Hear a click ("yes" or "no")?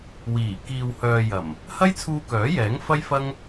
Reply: no